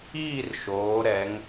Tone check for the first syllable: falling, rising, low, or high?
falling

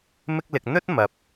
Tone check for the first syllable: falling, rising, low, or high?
high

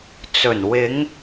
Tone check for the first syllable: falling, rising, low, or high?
low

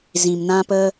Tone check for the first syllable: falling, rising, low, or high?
low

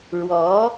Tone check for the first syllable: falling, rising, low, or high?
rising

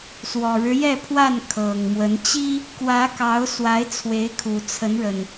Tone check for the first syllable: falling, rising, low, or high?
low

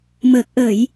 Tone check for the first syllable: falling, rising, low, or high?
low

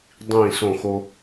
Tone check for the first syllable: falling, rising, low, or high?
falling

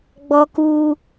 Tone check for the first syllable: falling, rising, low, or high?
high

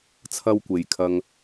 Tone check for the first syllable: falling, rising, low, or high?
high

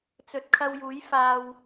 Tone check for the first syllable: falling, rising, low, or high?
low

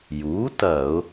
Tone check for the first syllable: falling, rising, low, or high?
rising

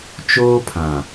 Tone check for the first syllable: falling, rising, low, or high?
high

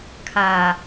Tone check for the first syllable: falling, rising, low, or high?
low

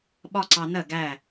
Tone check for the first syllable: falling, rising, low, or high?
high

